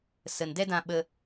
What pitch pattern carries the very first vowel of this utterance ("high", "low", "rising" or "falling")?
low